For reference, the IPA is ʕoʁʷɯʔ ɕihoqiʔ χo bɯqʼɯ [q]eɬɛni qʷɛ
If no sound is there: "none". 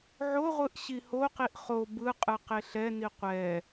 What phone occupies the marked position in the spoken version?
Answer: q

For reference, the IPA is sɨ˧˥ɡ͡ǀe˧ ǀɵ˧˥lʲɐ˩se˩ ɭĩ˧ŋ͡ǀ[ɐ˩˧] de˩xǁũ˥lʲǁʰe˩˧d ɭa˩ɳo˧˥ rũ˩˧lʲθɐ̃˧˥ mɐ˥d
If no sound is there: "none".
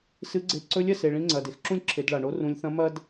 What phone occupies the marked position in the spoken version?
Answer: ɐ˩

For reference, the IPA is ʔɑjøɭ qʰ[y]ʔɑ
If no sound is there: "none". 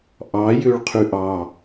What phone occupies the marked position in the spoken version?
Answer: y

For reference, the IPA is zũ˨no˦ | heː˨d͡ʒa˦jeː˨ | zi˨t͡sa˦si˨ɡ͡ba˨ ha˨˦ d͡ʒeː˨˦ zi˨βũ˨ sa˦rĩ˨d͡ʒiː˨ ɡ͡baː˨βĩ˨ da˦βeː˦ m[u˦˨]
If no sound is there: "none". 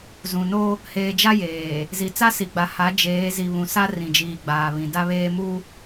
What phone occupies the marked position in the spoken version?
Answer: u˦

